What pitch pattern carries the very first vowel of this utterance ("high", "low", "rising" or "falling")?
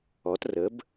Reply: rising